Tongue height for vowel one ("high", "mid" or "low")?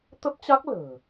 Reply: mid